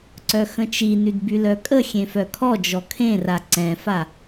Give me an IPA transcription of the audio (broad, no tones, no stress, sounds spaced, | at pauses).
ǀ œ x ə̃ t͡ʃ i n y d b y l œ kʼ ə xʲ ẽ f œ kʰ ɔ d͡ʒ ɔ kʰ ẽ r a ǀ ɛ̃ f a